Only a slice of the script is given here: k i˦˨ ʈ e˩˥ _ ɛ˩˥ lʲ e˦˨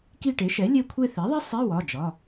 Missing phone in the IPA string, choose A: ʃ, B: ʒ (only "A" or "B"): A